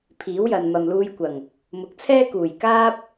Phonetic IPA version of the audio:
pʰ iː˨˥ w j ɐ˨ n m ɐ˨ m l uː˧ j kʷ ɐ˨˩ ŋ | m ʊ˨˥ k̚ t͡sʰ ɛː˥ k uː˨˩ j k aː˥ p̚

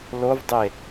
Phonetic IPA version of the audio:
l o v dˤ e

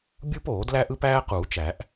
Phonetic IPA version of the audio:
bʲ uː˥ p oː˨˩˦ d l æ˥ ʔ ɯ˥ p æː˥ q uː˨˩˦ t͡ʃ æ˨˩˦ ʔ

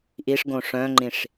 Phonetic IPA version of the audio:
ʔ i ʂ ɡ õ ʂ œ̃ ŋ͡ǃ ĩ ʂ

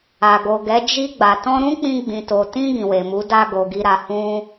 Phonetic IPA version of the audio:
a˨ ɡ o˨ ɡ ɛ˨˦ d͡ʒ i˧ ɡ͡b a˨ t ɔ̃˧ ɾ ũ˦ k͡p ĩ˧ ɡ͡b ĩ˨ t o˨ t ĩ˧ ɡ ĩ˨ w e˨ m u˨˦ d a˧ ɡ o˨ ɡ i˧ ɾ a˧ h ũ˦

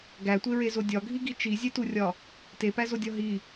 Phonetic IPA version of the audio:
ɡ æ tʷ e ɹ e z o dʲ ɒ ɡʱ i ɡ i t͡ʃ i zʲ e t u rʲ ɒ | t e p æ z o dʲ ɒ ɦ i

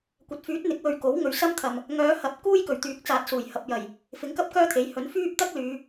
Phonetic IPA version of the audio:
kʷ ɐ˨˥ t̚ f yː˨˥ t̚ n̪ ɪ˨˥ k̚ w ɵ˨ ɥ k o˨˥ w ŋ ɵ˨ ɥ s ɐ˥ m t̪ʰ ɐ˨ m | ŋ œː˨˧ h ɐ˨ p̚ k uː˥ j k ɵ˨˩ ɥ t̪ yː˨˥ k̚ t͡s aː˨ t̚ s uː˨˩ j h ɐ˨ p̚ j ɐ˨˩ j | f ɪ˨˥ ŋ k ɐ˥ p̚ k œː˥ t̪ʰ e˨˥ j h ɵ˨˥ n f yː˥ p̚ t̪ ɐ˥ k̚ l yː˨˧

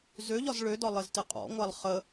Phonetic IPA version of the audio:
z ø ʎ ɒ z ɭ ø d ɒ lˠ ɪ z t ɪ qʼ ɔ̰ ŋʷ a lˠ χ ə

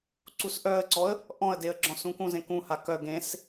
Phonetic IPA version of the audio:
ǀ u s ʔ œ ə̯ ǀ ɔ ə̯ | ʔ ɔ̃ ə̯ d e ə̯ ɡ͡ǁ ɔ̃ s ũ k ũ z ẽ k ũ h a k œ ɡ ẽ s

